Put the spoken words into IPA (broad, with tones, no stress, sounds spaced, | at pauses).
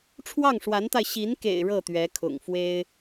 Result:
ʈ͡ʂʰ w ɑ˥˩ ŋ ʂ w a˧˥ n t̪ a˧ ɪ̯ ɕ i˧˥ n k ḛ˨˩ ɪ̯ ɻ ɤ˥˩ t̪ ɥ ɛ˧˥ kʰ ʊ̰˨˩ ŋ f w e˥ ɪ̯